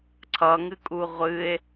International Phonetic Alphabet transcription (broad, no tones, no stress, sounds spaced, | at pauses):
ǀʰ ʌ ŋ ɨ kʼ u ʁʷ ɨ e̯